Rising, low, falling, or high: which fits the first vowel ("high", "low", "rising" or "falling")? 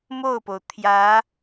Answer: falling